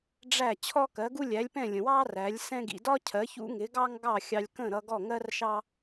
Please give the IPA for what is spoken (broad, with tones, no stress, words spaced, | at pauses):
ɖ͡ʐæ˥˩ t͡ɕʰɔ˥kɜ˩˥ɡu˥ lʲæ˩˥lʲpɛ̃˥˩lʲə̃˩wɑ˥ ræ˩˥lʲsɛ̃˥ɡḭ˧ dɒ˥cʰɜ˩˥çṵ˥ŋɪ˩˥ ɡɑ˥ŋɡɑ˥˩ xʲɑ˧lʲkə̃˥˩ɾʌ˧ ɡɔ˥˩ŋɜ˥r ʃɑ˥